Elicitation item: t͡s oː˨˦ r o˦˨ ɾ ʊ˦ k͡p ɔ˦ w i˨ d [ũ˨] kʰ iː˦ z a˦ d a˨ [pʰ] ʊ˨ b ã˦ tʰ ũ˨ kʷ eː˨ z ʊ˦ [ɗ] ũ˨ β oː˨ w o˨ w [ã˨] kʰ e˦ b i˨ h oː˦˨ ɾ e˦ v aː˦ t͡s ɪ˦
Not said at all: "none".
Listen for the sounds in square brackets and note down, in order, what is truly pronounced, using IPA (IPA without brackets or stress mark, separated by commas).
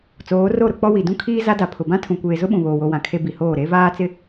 ũ˦, pʰ, ɓ, ã˨